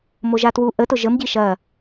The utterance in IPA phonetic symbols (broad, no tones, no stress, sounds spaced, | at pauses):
m o ʒ a t w u ʔ ə t ʊ ʒ ə m ɟ i ʃ ɐ